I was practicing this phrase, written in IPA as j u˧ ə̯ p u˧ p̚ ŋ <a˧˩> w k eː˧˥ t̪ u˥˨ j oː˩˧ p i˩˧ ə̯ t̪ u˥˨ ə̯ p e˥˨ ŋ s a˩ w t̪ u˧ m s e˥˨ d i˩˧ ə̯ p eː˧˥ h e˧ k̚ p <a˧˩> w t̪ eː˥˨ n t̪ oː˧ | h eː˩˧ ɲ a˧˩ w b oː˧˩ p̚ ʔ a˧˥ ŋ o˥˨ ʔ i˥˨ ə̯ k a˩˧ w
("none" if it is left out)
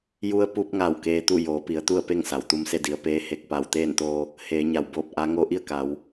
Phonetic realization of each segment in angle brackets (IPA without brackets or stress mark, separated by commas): a˧˩, a˧˩